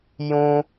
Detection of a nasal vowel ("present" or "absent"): present